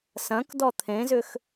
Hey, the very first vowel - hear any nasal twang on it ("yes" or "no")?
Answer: yes